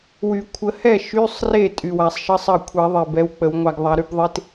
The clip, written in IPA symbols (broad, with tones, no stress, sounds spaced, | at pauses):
w y˨˩˦ kʷʰ ə˨˩˦ h ɛ˥˩ ʃ y˧˥˧ sˤ r e˥˩ tʼ y˨˩ w a˨˩ sˤ ʃ ə˧˥˧ sˤ ɜ˥˩ kʷʰ ɛ˨˩˦ ðˤ e˨˩ b ɛ˨˥ w k͡p ə˨˩˦ w ŋʷ a˧ ɡ ðˤ a˨˥ ɾ y˨˥ b ðˤ e˧˥˧ t